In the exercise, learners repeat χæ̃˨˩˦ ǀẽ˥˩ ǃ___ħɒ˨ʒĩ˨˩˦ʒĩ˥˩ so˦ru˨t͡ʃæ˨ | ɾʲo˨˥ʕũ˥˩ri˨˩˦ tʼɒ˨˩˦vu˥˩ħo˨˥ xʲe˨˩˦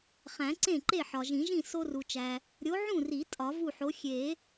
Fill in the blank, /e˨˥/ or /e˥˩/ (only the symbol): e˥˩